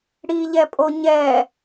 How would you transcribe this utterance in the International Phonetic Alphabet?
ɽ i ʎ ɛ pʼ o ɲ ɛ

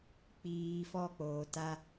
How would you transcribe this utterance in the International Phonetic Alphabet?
k͡p iː˦ f ɔ˦˨ k͡p oː˨ t a˦

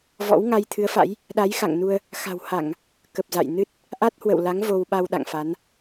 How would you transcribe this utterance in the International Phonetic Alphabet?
v ɔ̰˧˥ w ŋ a˧ j t̪ʰ ɨ˨˦ ə̯ f a̰˧˥ j | ɗ a˨˦ j x a̰˧˨ ŋ n u˧ ə̯ | x a̤˨˩ w h a˧˩˨ ŋ | k ə˨˩ p̚ z a̰˧˨ j n ɨ˦˥ t̚ | ʔ a˦˥ t̚ h w ə̰˧˨ w l a˨˦ ŋ v o˧ w ɓ a˧ w ɗ a̰˧˨ ŋ f a˨˦ n

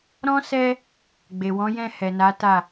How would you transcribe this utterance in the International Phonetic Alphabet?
ɾ ɔ̃˦ s ɛ˦ | ɡ͡b e˨ w ɔ̃˨˦ j ɛ̃˦˨ h ɛ˨ n a˨˦ t a˦˨

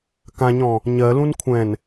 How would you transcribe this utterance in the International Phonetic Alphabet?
k ã ɲ ɔ̃ | ɲ ɜ l ũ n kʷʰ ɛ̃ n

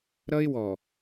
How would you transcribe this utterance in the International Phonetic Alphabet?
ɾ ʌ˦ ɪ̯ w ɔ˨

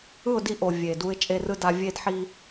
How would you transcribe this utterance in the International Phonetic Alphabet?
ɯ˦˨ ʊ̯ d i˦ ʔ o˨ vʲ e˨ d u˦ ɪ̯ t͡ʃʼ e˦ r ɯ˦ d a˦ vʲ e˦ d ħ i˦

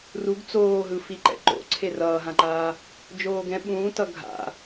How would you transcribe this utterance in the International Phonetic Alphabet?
r u ɡ t͡s oː ɦ ɯ f i ǃ ɛ̰ ǃ o̰ ǀʰ e r ʌː ɦ ã ǃ aː | d͡ʒ oː ɡ ɛ̃ ɓ ũː t ʌ ɡʱ a̰

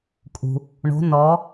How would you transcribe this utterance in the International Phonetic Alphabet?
kʼ ṳ˩ | ɳ o̤˨˦ n ɔ˨˦

